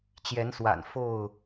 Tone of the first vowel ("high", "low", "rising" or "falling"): rising